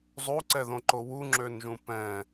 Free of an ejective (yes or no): yes